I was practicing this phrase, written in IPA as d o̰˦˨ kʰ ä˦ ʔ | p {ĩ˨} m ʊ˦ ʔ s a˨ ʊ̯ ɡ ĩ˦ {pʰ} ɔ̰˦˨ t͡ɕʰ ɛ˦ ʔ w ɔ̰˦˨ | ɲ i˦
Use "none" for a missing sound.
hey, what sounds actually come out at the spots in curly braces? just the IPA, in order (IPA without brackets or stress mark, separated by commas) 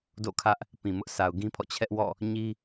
ĩ˨, pʰ